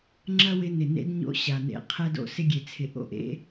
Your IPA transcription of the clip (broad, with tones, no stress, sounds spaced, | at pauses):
ŋ͡ǁ ɐ˦ w ɪ˧ n ɪ˨ n ḛ˦ d ɲ o̰˦ ɕ a˨ n ḛ˧ qʰ ɛ˧ d o̰˨ s ɪ˦ ɡʲ e˨ t͡sʰ ɪ˨ ʔ o̰˦ ʔ ḛ˦